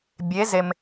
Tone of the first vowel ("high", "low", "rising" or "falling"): rising